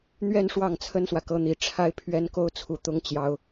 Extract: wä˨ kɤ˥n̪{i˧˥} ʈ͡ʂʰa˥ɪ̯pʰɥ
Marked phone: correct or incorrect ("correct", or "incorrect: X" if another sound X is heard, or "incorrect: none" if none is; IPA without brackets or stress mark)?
correct